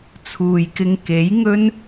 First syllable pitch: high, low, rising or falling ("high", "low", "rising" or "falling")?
low